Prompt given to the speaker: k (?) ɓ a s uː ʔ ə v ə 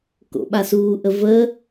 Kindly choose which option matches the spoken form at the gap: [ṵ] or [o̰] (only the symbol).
o̰